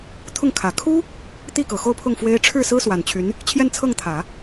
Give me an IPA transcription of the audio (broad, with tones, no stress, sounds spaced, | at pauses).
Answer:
t̪ʰ ʊ˥˩ ŋ kʰ ä˨˩ kʰ u˥ | t̪ i˥˩ k ɤ˨˩ x o˥˧ ʊ̯ pʰ ʊ˥˩ ŋ f w e˥ ɪ̯ ʈ͡ʂʰ ɻ̩˥˩ s ɹ̩˥ s w a˨˩ n t͡ɕʰ y˧˥ n | t͡ɕʰ j ɛ˥˧ n t͡sʰ ɤ˥˩ ŋ t̪ʰ ä˨˩˦